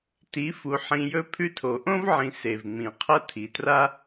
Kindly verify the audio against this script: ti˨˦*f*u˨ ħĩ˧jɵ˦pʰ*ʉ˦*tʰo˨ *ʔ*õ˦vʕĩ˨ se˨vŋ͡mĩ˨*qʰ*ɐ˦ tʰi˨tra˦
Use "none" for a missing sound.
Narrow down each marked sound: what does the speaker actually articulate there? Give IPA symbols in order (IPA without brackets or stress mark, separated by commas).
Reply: f, ʉ˦, ʔ, qʰ